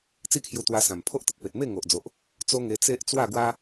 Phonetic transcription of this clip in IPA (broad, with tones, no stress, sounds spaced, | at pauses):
t͡s i˥˧ kʰ j u˧ t̪ w a˧ s ã˨˩ m pʰ o˦ ʔ t̪ ə˨ t̚ p e˨ t̚ m e˥˧ ŋ o˨ ʔ d͡z o˨ ʔ | t͡s o˦ ŋ e˧ t͡s e˦ ʔ t͡s w a˥˧ ɡ w a˦